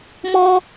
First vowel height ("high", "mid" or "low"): mid